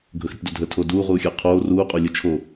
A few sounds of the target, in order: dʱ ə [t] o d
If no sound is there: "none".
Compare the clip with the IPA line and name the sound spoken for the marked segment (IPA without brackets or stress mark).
tʰ